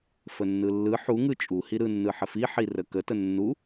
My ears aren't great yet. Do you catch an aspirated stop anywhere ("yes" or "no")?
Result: no